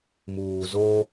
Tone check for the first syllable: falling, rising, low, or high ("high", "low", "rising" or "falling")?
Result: low